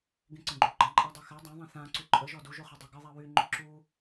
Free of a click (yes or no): no